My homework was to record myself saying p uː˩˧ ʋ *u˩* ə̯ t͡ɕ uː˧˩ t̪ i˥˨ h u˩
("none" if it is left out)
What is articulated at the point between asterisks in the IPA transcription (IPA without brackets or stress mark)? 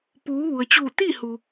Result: u˩